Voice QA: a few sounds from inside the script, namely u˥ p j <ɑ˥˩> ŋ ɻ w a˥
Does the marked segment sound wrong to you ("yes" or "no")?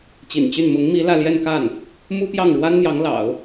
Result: no